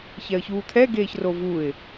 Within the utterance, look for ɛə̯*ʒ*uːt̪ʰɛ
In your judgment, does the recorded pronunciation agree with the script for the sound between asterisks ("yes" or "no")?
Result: no